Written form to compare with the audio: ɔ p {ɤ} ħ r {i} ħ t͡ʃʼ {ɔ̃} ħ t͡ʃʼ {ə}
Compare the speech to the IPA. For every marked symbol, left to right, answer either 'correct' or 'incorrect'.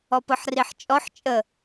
correct, correct, incorrect, correct

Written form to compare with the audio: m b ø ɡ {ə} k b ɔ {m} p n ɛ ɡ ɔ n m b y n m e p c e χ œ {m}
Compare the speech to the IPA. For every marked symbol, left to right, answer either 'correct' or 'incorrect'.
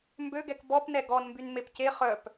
incorrect, incorrect, incorrect

